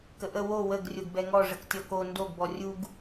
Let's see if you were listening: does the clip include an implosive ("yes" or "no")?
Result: no